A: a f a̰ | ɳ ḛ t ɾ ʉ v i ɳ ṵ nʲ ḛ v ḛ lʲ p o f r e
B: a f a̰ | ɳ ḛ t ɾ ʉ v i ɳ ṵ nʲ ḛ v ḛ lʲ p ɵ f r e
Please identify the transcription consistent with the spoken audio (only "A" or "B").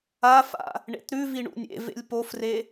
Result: A